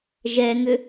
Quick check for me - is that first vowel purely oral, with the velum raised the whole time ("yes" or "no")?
yes